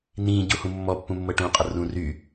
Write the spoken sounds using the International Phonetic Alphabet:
n ĩ ɟ u h ũ mː ɔ pː ũ mː ɤ ʈ ũ qʼ ə r ũ r y

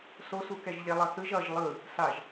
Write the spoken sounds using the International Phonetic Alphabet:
s o s u k ɛ ʒ ʎ e lˠ ʌ θ ɯ ʒ ʌ ʒ lˠ ɯ | s a ʒ

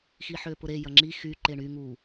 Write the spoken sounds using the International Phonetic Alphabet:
x i ħ ø p ʊ ɾ e j ɐ ŋ͡ǁ i x y ǃ e ɳ y ŋ u

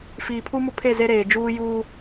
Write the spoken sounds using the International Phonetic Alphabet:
f iː˨ pʰ u˦ m ʊ˦ pʰ e˦˨ z e˦ ɾ eː˨ d͡ʒ uː˦ j uː˦

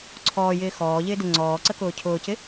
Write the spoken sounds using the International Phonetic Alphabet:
ǀʰ ɔː j ɪː x ɔː ʎ ɪː d ɪ ŋ͡ǀ ɔː ǀ ə k ʊː cʰ ʊː c ɪ

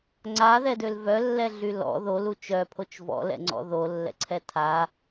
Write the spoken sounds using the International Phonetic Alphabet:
ŋ͡ǀ a ð ɛ d ø l v œ lː ɛ ɮ y l ɔ̰ ð o l u t͡ʃ œ pʰ o t͡ʃ v ɔ̰ l ɛ̰ ŋ͡ǀ ɔ̰ ð o lː ɛ̰ ǀʰ ɛ tʰ a

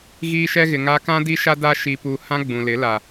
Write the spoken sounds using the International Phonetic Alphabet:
ɣ iː˦ ʃ ɛ˦ ɣ ɪ˨ ŋ a˦ k ã˦ d i˦ ʃ a˦ d a˦ ʃ i˨ p u˨ h ã˦ ɡ͡b ũ˨ l ɪ˨˦ l a˨

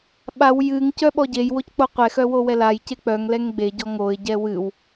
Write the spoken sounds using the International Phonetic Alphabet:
ɓ a w j ɨ ŋ c œ ɓ ɔ ɟ e j w o c k͡p o qʷ ɛ x œ w o w ɛ l a j c e k͡p œ ŋ l ɛ ŋ ɡ͡b e ɟ ɔ ŋ o ɪ̯ ɟ ɛ w ɨ w

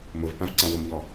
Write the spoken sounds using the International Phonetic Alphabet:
m ʊ v p ã v ǀ ã w ʊ m ʎ ɔ

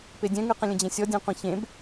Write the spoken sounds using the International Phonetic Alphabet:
p e dʲ ɛ̃ ŋ ʉ q ə̃ lʲ ə̃ d͡ʑ ẽ sʲ ɔ dʲ ɛ̃ qʷ ẽ ç ẽ b

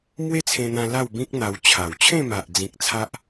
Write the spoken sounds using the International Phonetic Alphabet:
m w e˦ t͡sʰ ẽ˧ n̪ ã˧ l a˥˧ w b ĩ˦ k̚ n̪ a˧ w t͡ɕʰ a˨˩ w t͡ɕʰ ẽ˥˧ m a˨ ʔ d͡z ĩ˨ k̚ t͡sʰ a˦ ʔ

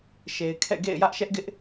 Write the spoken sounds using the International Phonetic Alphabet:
ʃ e˨ ɪ̯ kʰ ɛ̰˦˨ ɡ ḛ˦˨ ɪ̯ j ä˦ ʔ ʃ ɛ˦ ʔ ɡ ɪ˦ ʔ

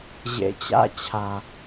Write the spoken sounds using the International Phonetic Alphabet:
ʑ ḛ˨ t͡ɕ a̰˦ t͡ɕʰ a˨

